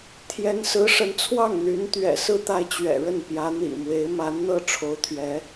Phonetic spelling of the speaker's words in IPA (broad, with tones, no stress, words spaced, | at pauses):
t̪ʰjɛ˧˥nsɹ̩˧˥ʂə˧˥nt͡sʰwɑ˥˩ŋ n̪y˧˥nt̪ɥɛ̰˨˩sɹ̩˥˧t̪a˥˩ɪ̯ t͡ɕɥɛ̰˨˩ɻə˥˩npjä˧˥ n̪ḭ˨˩mwe˧˥ɪ̯ ma˧˥nn̪ɤ˥˩ ʈ͡ʂʰo˧˥ʊ̯t̪ʰɥɛ˧˥